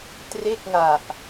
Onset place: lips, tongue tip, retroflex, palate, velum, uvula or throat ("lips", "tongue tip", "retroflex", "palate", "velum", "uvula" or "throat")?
tongue tip